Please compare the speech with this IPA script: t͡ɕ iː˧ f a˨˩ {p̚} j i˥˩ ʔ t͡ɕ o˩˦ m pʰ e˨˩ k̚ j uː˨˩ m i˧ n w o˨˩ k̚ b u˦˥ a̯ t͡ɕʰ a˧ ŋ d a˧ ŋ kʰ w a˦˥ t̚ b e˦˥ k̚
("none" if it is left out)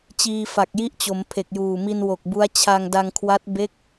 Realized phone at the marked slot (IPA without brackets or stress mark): k̚